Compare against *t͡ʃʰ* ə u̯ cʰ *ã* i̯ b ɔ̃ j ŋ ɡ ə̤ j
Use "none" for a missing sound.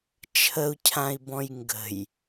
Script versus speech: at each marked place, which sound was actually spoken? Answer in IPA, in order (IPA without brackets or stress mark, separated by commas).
t͡ʃʰ, ã